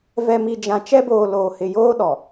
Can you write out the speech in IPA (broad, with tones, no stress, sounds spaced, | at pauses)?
v ɛ˨ m i˨ d͡ʒ ã˨ t͡ʃ ɛ˦ b oː˨ l oː˨ h ɪ˨ j oː˦ ɗ ɔ˨